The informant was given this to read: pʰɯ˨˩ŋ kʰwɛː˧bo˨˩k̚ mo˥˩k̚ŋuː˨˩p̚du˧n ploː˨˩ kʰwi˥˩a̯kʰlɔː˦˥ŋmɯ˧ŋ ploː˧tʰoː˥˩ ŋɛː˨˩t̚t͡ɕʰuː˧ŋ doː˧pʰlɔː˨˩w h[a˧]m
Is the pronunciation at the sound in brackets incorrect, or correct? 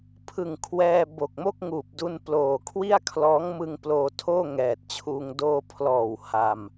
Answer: correct